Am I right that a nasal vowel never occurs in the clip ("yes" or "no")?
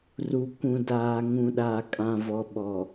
no